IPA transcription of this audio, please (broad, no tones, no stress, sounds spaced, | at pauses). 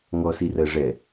ŋ ɔ s i r ɜ ʐ ɛ